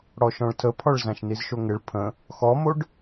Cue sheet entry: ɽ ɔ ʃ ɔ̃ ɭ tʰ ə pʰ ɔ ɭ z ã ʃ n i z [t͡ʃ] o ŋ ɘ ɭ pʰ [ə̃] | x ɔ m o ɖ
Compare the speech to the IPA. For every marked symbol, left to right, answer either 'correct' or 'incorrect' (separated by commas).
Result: incorrect, correct